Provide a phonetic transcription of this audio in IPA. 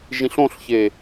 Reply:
ʒ ĩ ɬ õ ɬ ç e

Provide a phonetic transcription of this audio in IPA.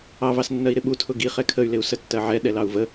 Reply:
ɑ v ɑ s nː ɜ i̯ ɾ ɪ ɓ u tʰ ʊ ɡ i χ ɛ kʰ ə y̯ l ɪ u̯ s ə tː ɜ ʕ ɛ ɗ ɛ l ɑ u̯ v ə

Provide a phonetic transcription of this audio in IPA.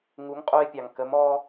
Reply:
ŋ u˨˦ ŋ qʼ o˧ e̯ pʲ ɑ˨ ŋ k ə˨˦ m ɔ˦

